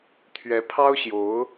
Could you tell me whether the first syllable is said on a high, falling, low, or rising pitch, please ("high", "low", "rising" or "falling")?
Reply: rising